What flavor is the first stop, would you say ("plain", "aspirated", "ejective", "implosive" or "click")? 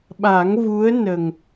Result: implosive